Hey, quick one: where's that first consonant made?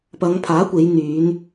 lips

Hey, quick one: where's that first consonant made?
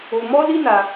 lips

